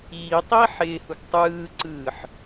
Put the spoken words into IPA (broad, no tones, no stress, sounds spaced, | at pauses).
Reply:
iː tˤ iː ħ ɪː h u ɡ tˤ ɯː ǀ ɯː ħ